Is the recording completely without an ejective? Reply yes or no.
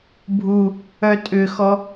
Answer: no